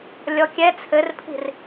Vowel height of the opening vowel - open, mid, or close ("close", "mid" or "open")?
mid